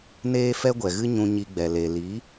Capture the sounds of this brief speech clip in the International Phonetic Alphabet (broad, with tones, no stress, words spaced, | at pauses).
neː˦fɛ˦ɡʷɛ˨ɣɨ˦ ɲũ˧ɲi˧ɡ͡bɛ˨ le˨ li˨˦